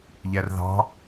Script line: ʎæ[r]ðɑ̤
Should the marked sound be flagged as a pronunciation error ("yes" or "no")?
no